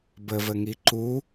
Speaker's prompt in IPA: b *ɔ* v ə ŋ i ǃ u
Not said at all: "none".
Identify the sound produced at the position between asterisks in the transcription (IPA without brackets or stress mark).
ə